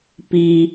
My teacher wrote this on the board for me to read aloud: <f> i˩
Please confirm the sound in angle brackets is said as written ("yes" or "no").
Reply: no